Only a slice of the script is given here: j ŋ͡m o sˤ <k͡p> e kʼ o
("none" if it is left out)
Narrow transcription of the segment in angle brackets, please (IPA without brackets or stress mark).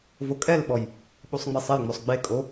ɡ͡b